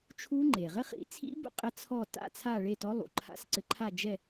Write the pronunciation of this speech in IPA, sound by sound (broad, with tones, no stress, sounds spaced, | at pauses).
t͡ʃʰ u˦˥ ŋ͡ǃ e˩ ʁ ɘ˦˥ χ ḭ˩˥ t͡sʰ ḭ˦˥ b ṵ˥˧ qʼ ɘ˦˥ t͡sʰ ɔ˥˧ t a̰˥˧ t͡sʰ a˥˧ ɭ e˥˧ t ɔ˦˥ lˠ ṵ˩˥ ǃʰ a̰˦˥ s ǀ ɘ˦˥ ǃʰ a˥˧ d͡ʒ ɛ˥˧